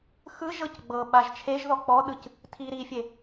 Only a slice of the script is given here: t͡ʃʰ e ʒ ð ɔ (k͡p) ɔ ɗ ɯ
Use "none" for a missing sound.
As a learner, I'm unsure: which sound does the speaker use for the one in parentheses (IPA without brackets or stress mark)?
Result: k͡p